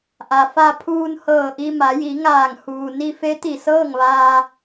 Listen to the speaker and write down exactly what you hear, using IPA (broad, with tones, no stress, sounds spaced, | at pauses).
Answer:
ʔ a˩ f a˧ pʰ uː˧ n h ɤː˧˩ ʔ i˧ m a˩˧ j i˩˧ ŋ aː˧˩ ŋ h uː˩ n i˧ f e˧˥ t̪ i˧˩ s ɤː˥˨ ŋ ʋ aː˧